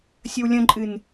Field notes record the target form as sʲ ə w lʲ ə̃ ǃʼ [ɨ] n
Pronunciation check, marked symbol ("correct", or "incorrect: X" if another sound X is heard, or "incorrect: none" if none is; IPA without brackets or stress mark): correct